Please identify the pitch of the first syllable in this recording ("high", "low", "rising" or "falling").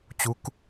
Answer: rising